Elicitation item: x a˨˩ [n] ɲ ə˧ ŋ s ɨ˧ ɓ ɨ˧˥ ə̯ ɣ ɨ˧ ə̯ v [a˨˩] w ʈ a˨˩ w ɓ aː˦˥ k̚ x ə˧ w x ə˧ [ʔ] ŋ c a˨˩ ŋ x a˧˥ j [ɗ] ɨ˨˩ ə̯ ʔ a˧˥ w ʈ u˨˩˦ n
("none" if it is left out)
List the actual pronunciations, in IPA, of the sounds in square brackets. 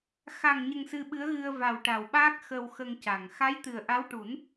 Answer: ŋ, a˨˩, none, t̪

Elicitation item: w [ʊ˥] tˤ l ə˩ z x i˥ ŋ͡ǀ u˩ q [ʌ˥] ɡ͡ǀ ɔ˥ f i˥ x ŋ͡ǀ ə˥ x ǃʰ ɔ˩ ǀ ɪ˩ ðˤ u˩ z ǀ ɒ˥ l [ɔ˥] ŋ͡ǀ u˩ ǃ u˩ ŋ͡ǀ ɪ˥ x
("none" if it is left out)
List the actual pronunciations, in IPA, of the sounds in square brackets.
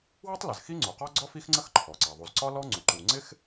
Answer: ʊ˥, ɒ˥, ɔ˥

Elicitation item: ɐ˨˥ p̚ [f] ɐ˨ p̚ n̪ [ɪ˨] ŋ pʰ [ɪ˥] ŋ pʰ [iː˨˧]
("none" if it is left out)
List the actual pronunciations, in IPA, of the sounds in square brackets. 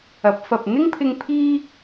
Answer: f, ɪ˥, ɪ˧, iː˥

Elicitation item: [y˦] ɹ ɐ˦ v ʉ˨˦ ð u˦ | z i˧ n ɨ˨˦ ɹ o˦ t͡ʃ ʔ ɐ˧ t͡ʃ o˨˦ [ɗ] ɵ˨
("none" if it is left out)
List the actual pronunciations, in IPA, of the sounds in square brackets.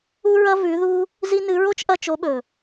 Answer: u˦, ɓ

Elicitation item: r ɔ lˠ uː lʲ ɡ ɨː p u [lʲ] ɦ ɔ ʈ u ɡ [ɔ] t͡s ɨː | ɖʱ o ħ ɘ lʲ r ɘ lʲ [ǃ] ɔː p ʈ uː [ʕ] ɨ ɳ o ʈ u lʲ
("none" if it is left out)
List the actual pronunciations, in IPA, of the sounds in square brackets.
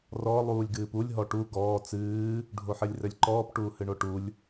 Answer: lʲ, ɔː, ǃ, h

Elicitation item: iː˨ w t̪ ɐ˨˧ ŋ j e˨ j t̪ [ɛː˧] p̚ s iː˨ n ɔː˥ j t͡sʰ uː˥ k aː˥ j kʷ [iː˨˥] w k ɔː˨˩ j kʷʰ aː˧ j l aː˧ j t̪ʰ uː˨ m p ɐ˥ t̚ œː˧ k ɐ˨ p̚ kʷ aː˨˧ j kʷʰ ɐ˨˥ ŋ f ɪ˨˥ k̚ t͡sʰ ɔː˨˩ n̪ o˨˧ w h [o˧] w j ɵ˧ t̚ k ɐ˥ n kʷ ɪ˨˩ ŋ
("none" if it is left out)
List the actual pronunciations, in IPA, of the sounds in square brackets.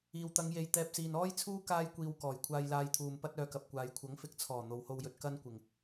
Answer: ɛː˧, iː˧, o˧

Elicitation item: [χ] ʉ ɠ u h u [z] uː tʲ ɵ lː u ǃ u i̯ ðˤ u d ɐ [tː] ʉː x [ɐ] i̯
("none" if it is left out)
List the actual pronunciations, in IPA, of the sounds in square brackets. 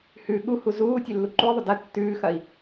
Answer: h, z, tː, ɐ

